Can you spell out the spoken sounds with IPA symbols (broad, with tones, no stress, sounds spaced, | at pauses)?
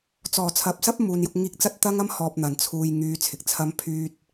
t͡s ɔː˨˩ t͡sʰ ɐ˨ p̚ s ɐ˥ p̚ m uː˨ n j ʊ˧ k̚ ŋ iː˧ k̚ t͡s ɐ˥ t̚ t̪ ɐ˥ ŋ ɐ˥ m h ɔː˨ p̚ n̪ ɐ˨˩ n t͡sʰ uː˨ j ŋ yː˨˧ t͡sʰ ɪ˨ k̚ t͡sʰ ɐ˥ m pʰ yː˥ t̚